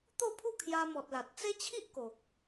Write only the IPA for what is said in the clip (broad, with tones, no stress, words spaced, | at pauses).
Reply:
t̪o˥˧pʰu˥˧ kʰja˧mɔ˨t̚la˨t̚ t͡se˦t͡ɕʰi˦ʔ ko˨k̚